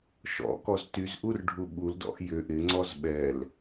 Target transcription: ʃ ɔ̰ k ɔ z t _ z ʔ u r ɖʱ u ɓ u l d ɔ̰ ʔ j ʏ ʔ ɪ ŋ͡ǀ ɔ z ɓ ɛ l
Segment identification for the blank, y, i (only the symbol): y